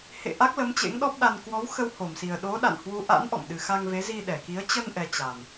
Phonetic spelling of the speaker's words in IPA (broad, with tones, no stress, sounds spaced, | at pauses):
h ḛ˧˨ ʔ a˦˥ k̚ l ə˨˦ m t͡ɕ ḛ˧˥ ŋ ɗ ɔ˦˥ p̚ ɗ a˧ n k w ɔ˨˦ w x ə˧ w h o˧˩ m s i˨˩ ə̯ ɗ o˨˦ ɗ a̰˧˨ n h w u˨˦ ʔ a̰˧˥ n ʔ ɔ̰˧˨ m ɗ ɨ˨˩ x a˧ ŋ v e˨˦ z i˧ ɗ ɛ˧˩ k i˨˦ ə̯ t͡ɕ ə˧ n ʔ ɛ˨˩ t͡ɕ a˨˩ m